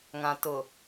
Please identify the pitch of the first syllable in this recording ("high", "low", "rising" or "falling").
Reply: low